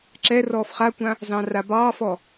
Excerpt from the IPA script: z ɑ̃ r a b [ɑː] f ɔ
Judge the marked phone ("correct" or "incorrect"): correct